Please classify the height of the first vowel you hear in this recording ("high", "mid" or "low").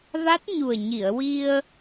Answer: low